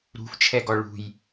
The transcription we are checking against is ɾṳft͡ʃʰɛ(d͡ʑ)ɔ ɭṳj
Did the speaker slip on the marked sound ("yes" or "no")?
yes